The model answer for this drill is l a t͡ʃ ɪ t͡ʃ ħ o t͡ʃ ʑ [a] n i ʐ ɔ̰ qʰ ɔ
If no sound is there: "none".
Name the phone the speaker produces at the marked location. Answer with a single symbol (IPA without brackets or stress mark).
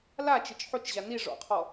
a